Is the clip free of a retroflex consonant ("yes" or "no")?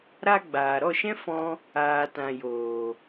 yes